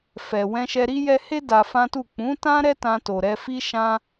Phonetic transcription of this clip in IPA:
f ɛ˨ w ɛ̃˧ ʃ ɛ˧ ɾ i˦ j ɛ˧ h e˦ d a˧ f ã˦ t u˦˨ k͡p ũ˨˦ t ã˦ ɾ ɛ˦ t ã˧ t o˨ ɾ ɛ˧ f i˦ ʃ ã˦

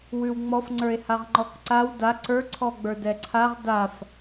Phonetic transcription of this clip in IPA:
w ʉ w ŋ͡m ɔ f ŋ͡ǀ ə˞ e̯ h a ʁ ŋ͡ǃ ɔ k ǀ a w d a ǀ ə˞ ǀʰ ɔ ɡ͡b ə˞ d ɛ ǀʰ a ʁ d a f

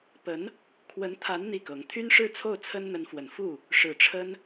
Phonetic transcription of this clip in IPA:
p ə˧˥ n | kʰ w ə˧˥ n t̪ʰ a˧˥ n n̪ i˥˩ k ɤ˧˥ ŋ t̪ʰ y˥ n ʂ ɻ̩˥˧ t͡sʰ o˥˩ ʊ̯ t͡sʰ ə˥ n n̪ ə˧˥ n f w ə˨˩ n f u˥˩ | ʂ ɻ̩˨˩ ʈ͡ʂʰ ə˥ n

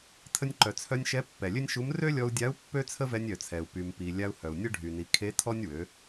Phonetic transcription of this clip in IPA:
tʰ ə˧ nʲ ǃ œ˩ t͡sʰ œ˧ nʲ ʃ ɛ˧˥ pː ɛ˩ lʲ ø˥ nʲ ʃ u˧˥ m r ø˥ lʲ ɔ˧ u̯ dʲ a˧˥ u̯ pː ø˥ t͡sʰ ə˥ v ɛ˧ nʲ œ˩ t͡sʰ ɛ˩ u̯ p y˩ m p i˩ lʲ a˧ u̯ h œ˩ u̯ nʲ ə˥ ɖʱ y˩ n i˩˧ kʰ e˧˥ tʰ ɔ˥ nʲ w ø˩˧

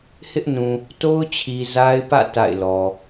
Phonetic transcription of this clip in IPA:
h ɪ˦ ʔ n ũ˨ | t o˦ ʊ̯ t͡ɕʰ i˨ z a˦ ɪ̯ p ä̰˦˨ t a̰˦˨ ɪ̯ l ɔ˨

